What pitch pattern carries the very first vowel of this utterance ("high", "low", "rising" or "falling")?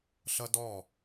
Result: high